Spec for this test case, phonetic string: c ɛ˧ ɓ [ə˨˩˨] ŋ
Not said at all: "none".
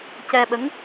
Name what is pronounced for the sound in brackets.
ə˧˥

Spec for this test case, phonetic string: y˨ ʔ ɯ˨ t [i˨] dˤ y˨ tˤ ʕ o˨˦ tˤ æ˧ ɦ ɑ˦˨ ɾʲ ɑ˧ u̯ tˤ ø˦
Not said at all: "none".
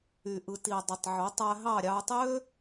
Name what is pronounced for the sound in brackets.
i˨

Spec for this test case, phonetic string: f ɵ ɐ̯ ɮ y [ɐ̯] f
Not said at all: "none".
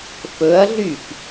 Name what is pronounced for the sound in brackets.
none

